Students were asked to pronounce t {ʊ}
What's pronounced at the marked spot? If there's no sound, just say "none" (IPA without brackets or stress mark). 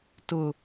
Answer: ʊ